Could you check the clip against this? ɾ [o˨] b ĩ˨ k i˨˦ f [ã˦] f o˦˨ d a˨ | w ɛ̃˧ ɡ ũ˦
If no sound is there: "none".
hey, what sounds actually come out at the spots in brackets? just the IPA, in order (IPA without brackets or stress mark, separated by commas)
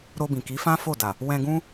o˧, ã˦